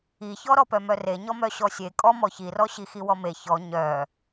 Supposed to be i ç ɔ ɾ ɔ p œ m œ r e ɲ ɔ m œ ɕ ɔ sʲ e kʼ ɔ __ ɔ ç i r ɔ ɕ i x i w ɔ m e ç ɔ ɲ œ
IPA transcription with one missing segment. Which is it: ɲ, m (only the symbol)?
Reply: m